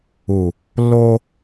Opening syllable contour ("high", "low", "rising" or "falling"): low